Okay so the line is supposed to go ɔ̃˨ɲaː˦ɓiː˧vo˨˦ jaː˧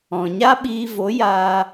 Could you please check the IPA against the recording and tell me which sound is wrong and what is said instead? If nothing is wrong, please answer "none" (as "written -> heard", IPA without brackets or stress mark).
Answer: none